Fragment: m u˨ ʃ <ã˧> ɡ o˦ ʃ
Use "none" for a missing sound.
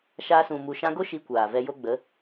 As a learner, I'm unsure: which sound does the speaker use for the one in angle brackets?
ã˧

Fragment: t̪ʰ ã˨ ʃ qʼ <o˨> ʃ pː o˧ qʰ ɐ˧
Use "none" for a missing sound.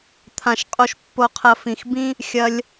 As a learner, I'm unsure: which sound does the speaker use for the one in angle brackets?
o˧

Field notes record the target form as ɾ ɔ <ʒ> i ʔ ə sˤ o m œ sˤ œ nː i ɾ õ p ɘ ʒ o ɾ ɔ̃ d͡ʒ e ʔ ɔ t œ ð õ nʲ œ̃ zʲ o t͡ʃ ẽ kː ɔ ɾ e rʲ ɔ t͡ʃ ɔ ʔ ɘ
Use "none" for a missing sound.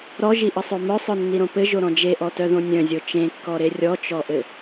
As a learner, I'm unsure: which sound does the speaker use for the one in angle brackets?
ʒ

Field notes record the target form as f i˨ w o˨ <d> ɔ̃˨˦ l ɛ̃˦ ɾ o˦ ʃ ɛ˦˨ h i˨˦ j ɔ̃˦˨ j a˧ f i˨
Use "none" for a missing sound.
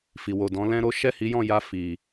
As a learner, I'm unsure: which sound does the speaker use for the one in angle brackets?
d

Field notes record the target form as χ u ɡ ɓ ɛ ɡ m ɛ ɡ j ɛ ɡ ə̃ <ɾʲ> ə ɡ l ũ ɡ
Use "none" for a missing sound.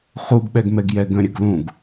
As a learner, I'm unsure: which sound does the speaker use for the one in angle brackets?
ɾʲ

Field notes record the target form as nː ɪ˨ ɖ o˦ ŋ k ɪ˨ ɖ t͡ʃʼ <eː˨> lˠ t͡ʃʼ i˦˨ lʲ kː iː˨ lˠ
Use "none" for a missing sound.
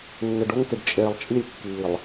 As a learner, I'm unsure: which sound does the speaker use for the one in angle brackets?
eː˨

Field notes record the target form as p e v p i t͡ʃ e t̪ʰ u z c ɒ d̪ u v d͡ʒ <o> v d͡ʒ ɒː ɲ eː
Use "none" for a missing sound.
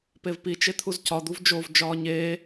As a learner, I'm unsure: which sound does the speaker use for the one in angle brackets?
o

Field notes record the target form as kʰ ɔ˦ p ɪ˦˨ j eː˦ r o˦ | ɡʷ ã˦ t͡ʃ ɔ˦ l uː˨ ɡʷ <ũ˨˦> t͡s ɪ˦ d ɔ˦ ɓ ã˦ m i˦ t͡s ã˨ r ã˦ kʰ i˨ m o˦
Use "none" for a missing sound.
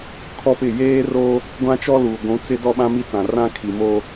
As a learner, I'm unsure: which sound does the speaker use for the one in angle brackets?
ũ˨˦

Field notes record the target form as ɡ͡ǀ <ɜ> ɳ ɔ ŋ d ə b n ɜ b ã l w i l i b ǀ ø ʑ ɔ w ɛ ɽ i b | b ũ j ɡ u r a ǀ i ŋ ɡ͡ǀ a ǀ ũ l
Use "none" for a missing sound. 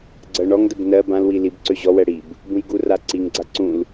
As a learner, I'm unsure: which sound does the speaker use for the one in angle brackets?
ɜ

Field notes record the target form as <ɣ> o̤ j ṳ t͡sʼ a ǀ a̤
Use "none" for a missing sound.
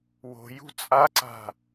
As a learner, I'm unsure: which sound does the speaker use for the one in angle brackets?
w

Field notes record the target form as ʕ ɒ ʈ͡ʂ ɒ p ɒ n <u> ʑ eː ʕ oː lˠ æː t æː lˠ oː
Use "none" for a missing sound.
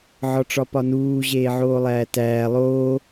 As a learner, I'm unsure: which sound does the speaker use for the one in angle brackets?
uː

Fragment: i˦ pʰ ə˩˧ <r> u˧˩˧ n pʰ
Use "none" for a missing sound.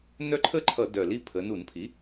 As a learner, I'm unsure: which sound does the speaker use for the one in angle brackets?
n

